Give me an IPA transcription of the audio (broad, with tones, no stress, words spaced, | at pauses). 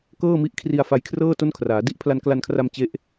kɤː˥˩mi˦˥ʔkʰri˧a̯ fa˧jkʰrɤː˥˩ to˥˩nkʰraː˩˦ di˦˥ʔpʰla˧nkla˧nkʰra˧m t͡ɕe˦˥ʔ